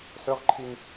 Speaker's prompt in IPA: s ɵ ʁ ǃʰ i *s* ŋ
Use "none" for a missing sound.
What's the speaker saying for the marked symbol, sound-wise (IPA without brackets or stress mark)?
none